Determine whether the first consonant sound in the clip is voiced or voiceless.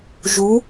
voiced